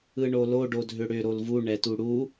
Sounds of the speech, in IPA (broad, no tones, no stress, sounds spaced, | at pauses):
ɯ ɳ o l o ɖ o dʱ ʏ ɽ ʏ ɾ o l v u ɳ ɛ t u ɽ u